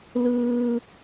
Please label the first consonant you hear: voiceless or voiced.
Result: voiced